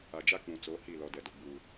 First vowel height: low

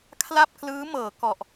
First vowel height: low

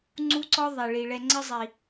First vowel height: high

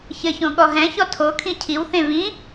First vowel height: mid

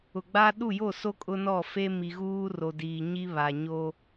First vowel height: high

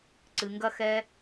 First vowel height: high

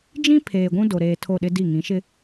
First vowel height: high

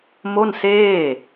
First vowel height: mid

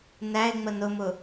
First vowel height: low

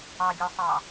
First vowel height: low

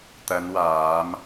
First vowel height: low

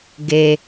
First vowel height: mid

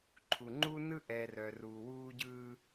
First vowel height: high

